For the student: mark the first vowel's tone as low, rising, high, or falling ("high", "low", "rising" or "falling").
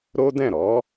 high